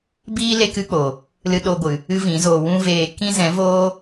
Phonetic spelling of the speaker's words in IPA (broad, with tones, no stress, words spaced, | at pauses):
biː˦ le˦kɨ˦k͡po˨ | lɨ˧ɗo˧ɡʷɨ˨ | ɨ˦vĩ˨˦zoː˧ wũ˦veː˧ kĩ˦zɛ̃˨˦ voː˦